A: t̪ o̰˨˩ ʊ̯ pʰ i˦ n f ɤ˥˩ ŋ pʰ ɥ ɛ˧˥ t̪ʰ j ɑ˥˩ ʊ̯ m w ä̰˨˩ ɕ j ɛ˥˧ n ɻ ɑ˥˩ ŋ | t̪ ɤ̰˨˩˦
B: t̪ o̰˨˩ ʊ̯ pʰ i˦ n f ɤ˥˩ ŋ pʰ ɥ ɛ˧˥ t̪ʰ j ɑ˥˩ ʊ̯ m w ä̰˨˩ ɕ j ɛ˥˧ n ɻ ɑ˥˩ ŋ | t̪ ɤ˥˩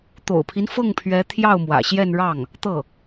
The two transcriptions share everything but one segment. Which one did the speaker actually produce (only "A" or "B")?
B